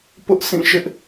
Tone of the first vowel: high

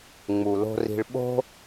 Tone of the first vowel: low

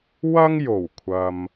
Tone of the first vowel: high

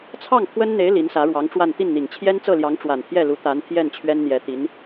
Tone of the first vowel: falling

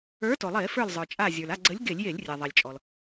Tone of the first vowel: rising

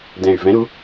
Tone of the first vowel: low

